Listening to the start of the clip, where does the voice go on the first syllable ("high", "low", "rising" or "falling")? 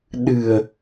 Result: low